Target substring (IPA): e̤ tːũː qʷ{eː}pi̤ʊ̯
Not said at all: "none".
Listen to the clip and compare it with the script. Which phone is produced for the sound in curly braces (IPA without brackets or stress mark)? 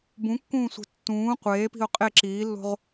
eː